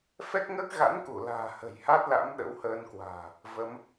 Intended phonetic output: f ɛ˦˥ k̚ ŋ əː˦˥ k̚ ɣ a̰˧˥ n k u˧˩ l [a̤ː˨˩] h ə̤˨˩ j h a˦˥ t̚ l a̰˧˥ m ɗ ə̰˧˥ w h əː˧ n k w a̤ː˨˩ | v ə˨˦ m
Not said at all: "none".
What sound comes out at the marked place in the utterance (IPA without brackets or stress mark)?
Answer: a̤ː˨˩